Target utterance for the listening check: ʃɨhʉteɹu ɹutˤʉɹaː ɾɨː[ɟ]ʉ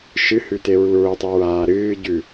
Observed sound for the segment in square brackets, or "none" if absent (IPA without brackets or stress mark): ɟ